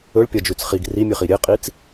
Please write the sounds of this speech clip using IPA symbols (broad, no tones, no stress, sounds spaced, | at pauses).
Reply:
ɵ ɭ pʲ ɐ d͡ʒ ʉ t͡s χ i ɡ r i mʲ ɨ χ i ɾʲ e qʼ i t͡s